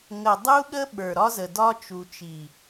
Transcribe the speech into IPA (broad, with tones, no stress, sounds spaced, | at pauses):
ŋ ə˨ dˤ u˦ ɠ ə˦ ɓ ə˞˨ ɾ ɒ˦ z ə˨ d ɒ˦ t͡ʃ u˨ t͡ʃ i˨